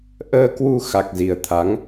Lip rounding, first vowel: unrounded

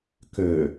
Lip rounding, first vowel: rounded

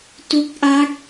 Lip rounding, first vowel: rounded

